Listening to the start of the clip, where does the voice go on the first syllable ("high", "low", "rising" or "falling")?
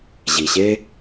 low